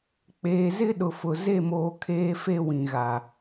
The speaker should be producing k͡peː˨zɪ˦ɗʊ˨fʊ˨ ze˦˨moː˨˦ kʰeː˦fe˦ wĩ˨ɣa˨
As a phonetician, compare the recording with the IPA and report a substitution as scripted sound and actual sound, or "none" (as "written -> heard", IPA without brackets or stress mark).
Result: none